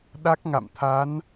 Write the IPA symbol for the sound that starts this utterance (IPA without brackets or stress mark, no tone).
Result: ɗ